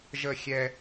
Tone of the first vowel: falling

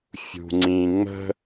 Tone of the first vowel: low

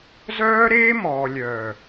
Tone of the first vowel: high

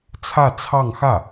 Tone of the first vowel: falling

